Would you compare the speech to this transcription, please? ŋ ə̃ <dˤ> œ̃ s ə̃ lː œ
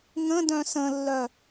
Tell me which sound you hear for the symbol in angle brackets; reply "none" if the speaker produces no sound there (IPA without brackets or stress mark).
d